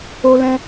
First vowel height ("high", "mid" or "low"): mid